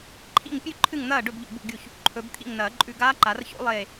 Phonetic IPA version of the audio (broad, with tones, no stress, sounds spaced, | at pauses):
ǃʰ ḭ˥˩ ŋ pʲ ʉ˥˩ ǃʰ ɨ˥˩ ŋ n̪ ɐː˥˩ ɖ ɵ˥˩ b ʎ ṵ˧˩ b ṵ˥˩ ɡʲ u˥˩ ç | ǃʰ ɵ˨˩˦ b t̪ʰ ḭ˥˩ ŋ n ɐː˨˩˦ ǃʼ ʉ˧˩ ɡ aː˦˥ ǃ a˨˩˦ r ç o̰˦˥ lˠ eː˧˩